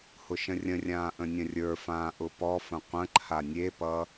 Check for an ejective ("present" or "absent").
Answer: absent